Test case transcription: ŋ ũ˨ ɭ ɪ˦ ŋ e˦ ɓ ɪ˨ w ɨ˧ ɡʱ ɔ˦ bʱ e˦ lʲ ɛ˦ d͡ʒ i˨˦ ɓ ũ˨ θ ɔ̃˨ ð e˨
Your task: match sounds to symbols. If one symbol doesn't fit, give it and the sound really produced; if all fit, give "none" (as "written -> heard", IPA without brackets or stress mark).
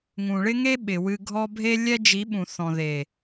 none